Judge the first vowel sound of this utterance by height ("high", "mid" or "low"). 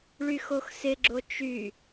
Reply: high